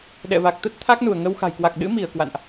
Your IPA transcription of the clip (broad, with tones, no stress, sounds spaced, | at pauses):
ɗ ɛ̰˧˨ v a˨˩ k̚ t̪ ə˦˥ t̚ t̪ʰ a˦˥ k̚ n u˧˩ ə̯ ŋ ə˧ w x a̤˨˩ j k w a˨˩ k̚ ɗ ɨ̰˧˥ m i˧˩ ə̯ k w a̰˧˨ n ʔ